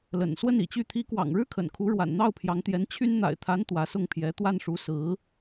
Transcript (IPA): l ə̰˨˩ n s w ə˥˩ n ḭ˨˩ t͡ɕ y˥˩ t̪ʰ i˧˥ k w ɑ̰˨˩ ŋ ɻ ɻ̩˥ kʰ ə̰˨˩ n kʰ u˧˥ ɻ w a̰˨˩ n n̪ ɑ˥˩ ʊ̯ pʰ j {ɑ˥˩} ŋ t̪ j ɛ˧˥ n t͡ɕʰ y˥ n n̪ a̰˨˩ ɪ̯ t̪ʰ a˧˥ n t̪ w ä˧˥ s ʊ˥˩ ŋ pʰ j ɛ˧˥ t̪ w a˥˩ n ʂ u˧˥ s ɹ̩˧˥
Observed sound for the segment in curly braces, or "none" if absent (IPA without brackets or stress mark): ɑ˧˥